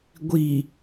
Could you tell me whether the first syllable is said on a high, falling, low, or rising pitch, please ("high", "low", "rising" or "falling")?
low